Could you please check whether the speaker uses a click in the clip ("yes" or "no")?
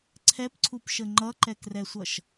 yes